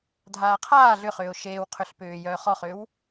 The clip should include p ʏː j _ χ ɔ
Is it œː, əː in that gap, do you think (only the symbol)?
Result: œː